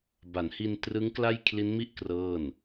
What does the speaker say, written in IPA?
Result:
b a˩˦ n h i˧ n t r ɯ˦˥ ŋ k l a˥˩ j kʰ l i˦˥ n m i˥˩ ʔ k r ɤː˥˩ n

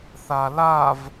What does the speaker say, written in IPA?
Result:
θ a l a v

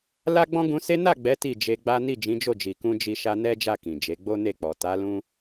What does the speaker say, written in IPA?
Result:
l a˦ ɡ͡b ɔ̃˦ ɡ ũ˧ s e˦ n a˦˨ ɡ͡b ɛ˨˦ t i˦˨ d͡ʒ e˧ ɡ͡b a˦ n i˦˨ d͡ʒ ĩ˨˦ d͡ʒ o˦˨ d͡ʒ i˨ k ũ˧ d͡ʒ i˧ ʃ a˧ n ɛ˦ d͡ʒ a˦˨ k ĩ˨ d͡ʒ e˨˦ ɡ͡b o˦ n e˦˨ k͡p ɔ˨ t a˨˦ l ũ˦

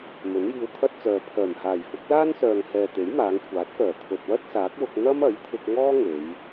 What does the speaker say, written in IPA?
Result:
m ɵ˨˥ n j iː˧ w t̪ʰ ɐ˥ t̚ t͡s œː˨ pʰ œː˨˩ m h aː˨˩ j f ʊ˨˥ k̚ l aː˥ n s œː˨ ŋ h ɛː˨ t̪ e˨˥ j m aː˨˧ ŋ kʷʰ aː˨˥ t̚ f œː˨˩ t̪ʰ ɵ˨ t̚ w ɐ˥ t̚ s aː˨˥ k̚ w ʊ˧ k̚ n̪ ɐ˥ m ɐ˨˥ j t̪ʰ ɪ˧ k̚ ŋ ɔː˥ ŋ e˨˧ j

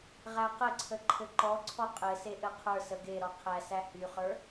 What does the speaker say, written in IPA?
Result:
ʁ æ q ə ǀʰ ə ǃʰ ɘ ǃ ɔ ǀʰ ɔ qʼ ɘ s e ʔ ɘ qʰ ə˞ s ə ɡ e ɾ ɔ qʰ æ s æ h y χ ə˞

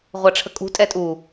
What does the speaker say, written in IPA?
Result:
ʁʷ æ ʈ͡ʂʰ ə kʼ ṳ tʼ ɛ tʼ u

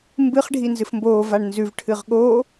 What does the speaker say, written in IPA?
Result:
m b ɨ χ ɖʱ i n z ɨ f m b oː v a ɳ n z ʉ v ʈʰ ɨ ʁ ɠ oː

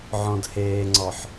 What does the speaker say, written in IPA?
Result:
ʕ ɔ̃ d h eː ŋ͡ǀ ɔ ħ

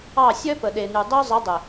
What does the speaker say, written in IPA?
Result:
ɑ˦˨ sʲ œ˦ p ə˨ ɗ e˨ n y˨ dˤ œ˦ zˤ ə˨˦ dˤ ə˨

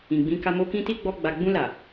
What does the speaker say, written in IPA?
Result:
ĩ˨ ɡ͡b ĩ˨˦ k a˧ m o˧ k ĩ˦ t i˦ ɡ͡b ɔ˧ ɡ͡b a˨ ɡ͡b ũ˧ l a˨

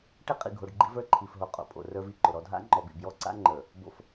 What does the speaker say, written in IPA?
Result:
ʈ e˦ qʼ ḭ˨ ɡʱ o˨ ɖ ɡ͡ǃ ḭ˦ v ə˞˦ ǃʰ i˨ f ɦ o˨ qʼ o̰˨ pʼ o̰˨ r ə˞˦ v i˨ ǃ ʊ˨ ɾ ɔ˦ dʱ a̰˦ ŋ͡ǃ ɔ˨ b ḭ˨ b j ɔ˦ ǀ a̰˦ ŋ͡ǃ ə˞˨ | b o̰˦ f

